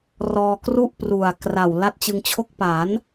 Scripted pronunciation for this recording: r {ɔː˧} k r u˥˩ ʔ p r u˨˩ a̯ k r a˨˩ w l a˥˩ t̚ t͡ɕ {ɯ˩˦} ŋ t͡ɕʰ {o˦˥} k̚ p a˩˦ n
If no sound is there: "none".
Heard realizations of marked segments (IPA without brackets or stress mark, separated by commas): ɔː˧, ɯ˧, o˥˩